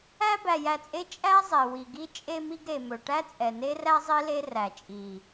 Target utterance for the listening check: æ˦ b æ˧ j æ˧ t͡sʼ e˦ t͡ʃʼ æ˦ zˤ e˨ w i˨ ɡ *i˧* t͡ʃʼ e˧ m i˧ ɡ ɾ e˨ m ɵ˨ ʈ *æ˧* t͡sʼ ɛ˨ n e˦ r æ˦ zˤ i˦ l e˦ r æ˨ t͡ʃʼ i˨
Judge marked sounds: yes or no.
yes, no

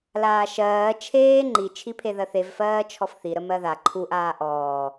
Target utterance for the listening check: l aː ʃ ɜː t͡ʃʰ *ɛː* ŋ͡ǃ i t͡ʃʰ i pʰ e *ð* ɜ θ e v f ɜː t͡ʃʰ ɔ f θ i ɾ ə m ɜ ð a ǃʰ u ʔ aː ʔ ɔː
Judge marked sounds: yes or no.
no, yes

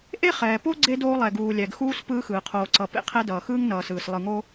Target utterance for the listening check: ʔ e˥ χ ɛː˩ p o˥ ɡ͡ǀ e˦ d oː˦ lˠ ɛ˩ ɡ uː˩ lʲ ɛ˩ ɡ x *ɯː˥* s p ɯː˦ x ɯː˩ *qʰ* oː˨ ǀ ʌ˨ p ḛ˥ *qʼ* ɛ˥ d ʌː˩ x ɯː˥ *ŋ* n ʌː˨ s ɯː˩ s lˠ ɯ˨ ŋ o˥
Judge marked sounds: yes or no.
no, yes, no, yes

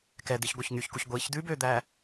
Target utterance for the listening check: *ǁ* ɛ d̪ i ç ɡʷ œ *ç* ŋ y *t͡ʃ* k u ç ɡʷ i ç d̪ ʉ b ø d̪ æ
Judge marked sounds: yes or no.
no, yes, no

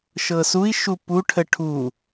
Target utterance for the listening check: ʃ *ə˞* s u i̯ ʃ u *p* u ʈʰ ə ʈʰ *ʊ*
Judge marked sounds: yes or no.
no, yes, no

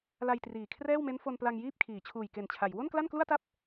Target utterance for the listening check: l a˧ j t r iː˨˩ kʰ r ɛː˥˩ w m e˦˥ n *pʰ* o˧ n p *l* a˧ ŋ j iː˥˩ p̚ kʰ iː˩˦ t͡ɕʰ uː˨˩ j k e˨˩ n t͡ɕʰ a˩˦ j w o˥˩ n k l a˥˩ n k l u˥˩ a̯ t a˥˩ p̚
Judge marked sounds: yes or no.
no, yes

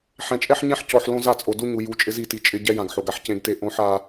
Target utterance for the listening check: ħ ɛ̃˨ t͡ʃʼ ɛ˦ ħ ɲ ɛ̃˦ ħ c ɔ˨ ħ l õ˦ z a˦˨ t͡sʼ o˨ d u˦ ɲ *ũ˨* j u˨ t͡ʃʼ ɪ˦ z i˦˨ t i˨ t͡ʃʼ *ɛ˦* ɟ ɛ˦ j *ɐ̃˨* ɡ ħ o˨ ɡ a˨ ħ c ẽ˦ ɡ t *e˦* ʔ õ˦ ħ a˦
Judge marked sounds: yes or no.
no, no, no, yes

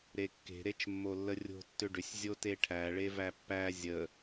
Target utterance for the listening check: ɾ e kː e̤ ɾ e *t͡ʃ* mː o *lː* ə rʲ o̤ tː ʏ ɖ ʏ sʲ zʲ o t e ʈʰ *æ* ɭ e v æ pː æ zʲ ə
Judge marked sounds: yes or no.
yes, yes, yes

